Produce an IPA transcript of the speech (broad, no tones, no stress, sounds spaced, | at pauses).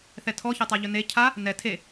θ ɛ tʰ ɔ ç a tˤ a ʎ ɵ n e cʰ a | n ɛ tʰ e